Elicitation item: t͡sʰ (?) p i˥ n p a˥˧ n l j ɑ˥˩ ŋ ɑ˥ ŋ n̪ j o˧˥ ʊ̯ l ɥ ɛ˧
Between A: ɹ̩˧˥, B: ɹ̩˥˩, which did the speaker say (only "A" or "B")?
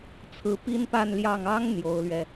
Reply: A